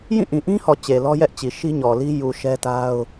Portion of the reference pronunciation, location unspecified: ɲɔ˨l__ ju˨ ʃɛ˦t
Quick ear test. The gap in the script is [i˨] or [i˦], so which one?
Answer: i˦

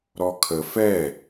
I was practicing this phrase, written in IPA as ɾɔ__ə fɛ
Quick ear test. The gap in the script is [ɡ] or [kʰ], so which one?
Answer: kʰ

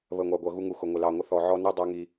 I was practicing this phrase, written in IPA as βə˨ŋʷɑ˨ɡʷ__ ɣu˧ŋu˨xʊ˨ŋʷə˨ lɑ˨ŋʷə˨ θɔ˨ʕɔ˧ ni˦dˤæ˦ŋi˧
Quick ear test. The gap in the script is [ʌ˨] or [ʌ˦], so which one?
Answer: ʌ˨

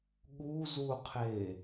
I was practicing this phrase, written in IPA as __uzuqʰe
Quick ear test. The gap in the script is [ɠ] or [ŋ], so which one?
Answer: ɠ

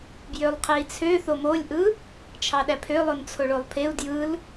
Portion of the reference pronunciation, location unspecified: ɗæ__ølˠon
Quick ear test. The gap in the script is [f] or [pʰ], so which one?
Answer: pʰ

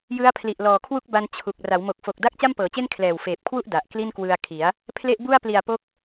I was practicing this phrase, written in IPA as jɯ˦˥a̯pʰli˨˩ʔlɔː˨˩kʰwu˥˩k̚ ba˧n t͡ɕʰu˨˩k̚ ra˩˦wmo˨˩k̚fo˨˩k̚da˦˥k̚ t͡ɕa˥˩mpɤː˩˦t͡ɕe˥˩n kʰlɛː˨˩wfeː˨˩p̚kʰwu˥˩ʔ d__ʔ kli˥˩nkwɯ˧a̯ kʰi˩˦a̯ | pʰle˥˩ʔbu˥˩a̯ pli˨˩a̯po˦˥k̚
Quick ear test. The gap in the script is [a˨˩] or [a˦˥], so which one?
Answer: a˨˩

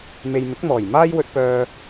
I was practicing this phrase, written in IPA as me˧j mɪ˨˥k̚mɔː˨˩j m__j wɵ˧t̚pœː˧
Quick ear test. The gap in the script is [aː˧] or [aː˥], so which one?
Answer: aː˥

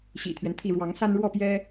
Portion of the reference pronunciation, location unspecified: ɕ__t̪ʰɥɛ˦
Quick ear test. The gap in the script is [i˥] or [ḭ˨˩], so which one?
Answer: ḭ˨˩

